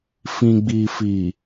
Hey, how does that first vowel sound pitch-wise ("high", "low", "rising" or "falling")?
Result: low